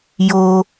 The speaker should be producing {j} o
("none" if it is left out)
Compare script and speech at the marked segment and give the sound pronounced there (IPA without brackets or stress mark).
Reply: j